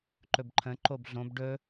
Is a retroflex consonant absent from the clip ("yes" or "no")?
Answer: no